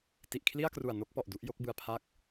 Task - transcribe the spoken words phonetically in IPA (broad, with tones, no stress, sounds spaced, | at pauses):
t i˨˩ ʔ kʰ l i˥˩ a̯ k r u˨˩ a̯ n o˥˩ k̚ p ɔ˨˩ ʔ d u˦˥ ʔ j o˦˥ k̚ b ɯ˧ a̯ pʰ a˦˥ k̚